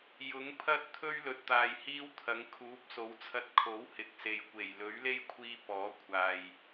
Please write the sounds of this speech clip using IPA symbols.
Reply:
j ʊ˨˥ ŋ pʰ ɐ˥ t̚ t̪ʰ ɵ˥ ɥ l ɵ˨ t̚ t̪ aː˨ j h iː˥ w t̪ʰ ɐ˨˥ ŋ kʰ uː˨˥ p̚ s o˨˥ w t͡sʰ ɐ˧ t̚ kʰ o˨˥ w h ɪ˨˥ k̚ s e˨ j kʷ e˨˩ j l ɵ˨˥ ɥ l e˥ j kʷʰ iː˧ p ɔː˨˥ kʷʰ aː˨ j

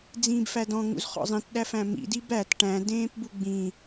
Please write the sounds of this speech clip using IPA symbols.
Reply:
d͡z ĩː b f æ d ɔ̃ ŋ ṵ z χ ɔ̰ zˤ ĩ t ɗ æ f æ̃ m ḭ d i b æ t ʈ æ̃ d ẽː p b u ɡ͡b ĩ

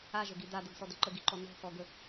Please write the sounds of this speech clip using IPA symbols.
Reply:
a ʒ ə ɡ i d̪ a d̪ ɤ ɡ s ɔ d̪ ə ǃ ə ɡ i ǃ ɔ n̪ ɔ̤ x ɔ ɡ ə

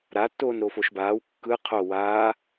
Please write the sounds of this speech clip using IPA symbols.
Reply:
ɾ a tː oː n ɾ o f o ʃ b aː w kː ɯ qʰ o w aː

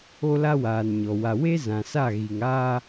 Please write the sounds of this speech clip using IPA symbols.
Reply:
o˦ l a˦ w aː˨ n ɲ ɔ˨ w a˨ w e˦ z ã˨ s a˦˨ ɣ i˨ ŋ aː˦

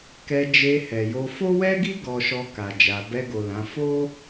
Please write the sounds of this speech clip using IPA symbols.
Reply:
k ɛ˧ d͡ʒ e˧ h ɛ˨ j o˧ f o˦ w ɛ˦ ɡ i˦ ɡ ɔ˧ ʃ ɔ˧ k a˨ d͡ʒ a˨ b ɛ˧ ɡ o˨ l ã˨˦ f o˦

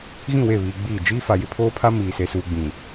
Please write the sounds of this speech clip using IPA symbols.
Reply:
ɣ ĩ˦˨ w e˦˨ β iː˨ ɡ͡b iː˦˨ d͡ʒ iː˦ f a˨ j ɪ˦ pʰ oː˦ pʰ a˦ m iː˨ s e˨ s uː˨ ɡ͡b ĩ˨

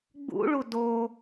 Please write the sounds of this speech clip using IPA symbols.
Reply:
ɡ͡b ṵ ɭ u d o

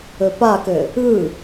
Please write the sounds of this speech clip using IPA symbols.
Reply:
ɵ p a k ɘ | ɯ

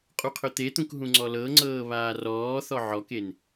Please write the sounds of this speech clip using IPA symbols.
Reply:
qʼ u qʰ ɵ t̪ e t̪ ũ k ɦ ũ ŋ͡ǀ ɔ l ɤ ŋ͡ǀ ɤː β aː r ɔː θ ɔ ʕ ɔ k e n

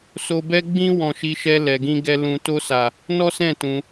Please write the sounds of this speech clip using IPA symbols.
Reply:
s o˧ b ɛ˦ ɡ͡b ĩ˦ w ɔ̃˧ ʃ i˧ ʃ ɛ˧ l ɛ˨ ɡ ĩ˧ ɡ ɛ˧ l ũ˨ t o˧ s a˨ | n ɔ˦ s ɛ̃˦˨ t ũ˧

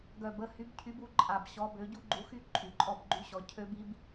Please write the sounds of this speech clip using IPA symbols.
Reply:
ɡ œ˨˩ b ə˥˨ h y˨˥ b cʰ y˨˥ b u˨˥ ǃʼ a˨˩ b ɕ ɔ˨˥ b ø˨˥ ɟ u˦˥ ɡ͡ǃ u˨˥ x y˥˨ ǃʼ y˨˩ ǃʼ ɔ˥˨ b ɡ͡ǃ y˦˥ ɕ ɔ˨˥ cʰ ø˦˥ b i˦˥ b

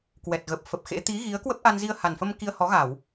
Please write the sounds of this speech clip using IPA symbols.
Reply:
k w ɛ˨˩ t̚ ɣ ə˨˩ p̚ f ə˨˩ p̚ x ḛ˧˥ t̪ i˨˦ ɣ i˨˦ ə̯ k w ə˦˥ p̚ ʔ a˧ n z i˧ ə̯ h a˨˩ n f ə˧ m k i˧ ə̯ h ɔ˨˦ ɣ a˧˩˨ w

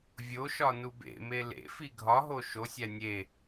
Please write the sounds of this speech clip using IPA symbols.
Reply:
vʲ o ʃ ɒ n u b ḛ m e l ḛ f i ɡʱ ɒ ɦ o ʃ o sʲ æ nʲ e

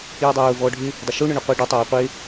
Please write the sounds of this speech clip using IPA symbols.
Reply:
j y dˤ ɪ j ʊ v ɔ ɖʱ ɪ | dˤ ɐ ʃ u ɳ ʏ ɳ ʏ qʷ ɐ ɖ ə tˤ œ j y qʷ e

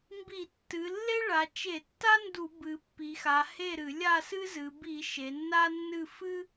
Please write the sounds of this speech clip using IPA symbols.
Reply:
m b i˧˩˧ tː ɨ˩˧ lː e˥ ɭ a˩˧ t͡ʃ e˧˩˧ tː a˥ n d u˧˩˧ b ɨ˩˧ pː i˩˧ x a˩˧ h e˥˨ ɾ ɨ˧˩˧ lʲ a˥˨ s ɨ˥ z ɨ˩˧ b i˧˩˧ ʃ e˩˧ nː a˥ nː ɨ˥˨ f ɨ˥

